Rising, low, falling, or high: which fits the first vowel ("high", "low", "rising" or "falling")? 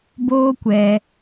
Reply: high